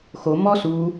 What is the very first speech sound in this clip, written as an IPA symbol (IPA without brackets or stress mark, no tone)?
x